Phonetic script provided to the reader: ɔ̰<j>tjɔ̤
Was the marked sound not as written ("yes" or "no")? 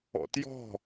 yes